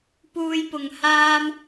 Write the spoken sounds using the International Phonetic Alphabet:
p uː˧ j p ʊ˨ ŋ h aː˥ m

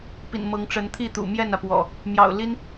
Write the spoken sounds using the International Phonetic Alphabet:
p ḭ˨˩ n m ɤ˨˦ ŋ ʈ͡ʂ ə˨˦ n t̪ʰ i˥˨ t̪ ṵ˨˩ m j ɛ˥˨ n ä˩ p w ɔ̰˨˩ | m j ɑ̰˨˩ ʊ̯ l i˦ n

